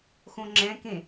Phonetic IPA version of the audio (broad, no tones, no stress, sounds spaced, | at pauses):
x õ ŋ͡ǁ ɛ̃ k ẽ